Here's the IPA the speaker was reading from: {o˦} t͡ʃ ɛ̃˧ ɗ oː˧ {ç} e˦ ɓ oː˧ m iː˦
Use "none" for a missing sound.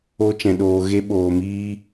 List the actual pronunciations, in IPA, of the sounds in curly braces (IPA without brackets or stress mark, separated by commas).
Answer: o˦, ɣ